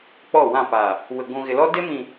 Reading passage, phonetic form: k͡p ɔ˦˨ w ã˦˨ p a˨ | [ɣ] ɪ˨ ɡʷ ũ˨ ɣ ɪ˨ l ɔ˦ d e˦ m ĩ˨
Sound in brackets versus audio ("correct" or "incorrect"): incorrect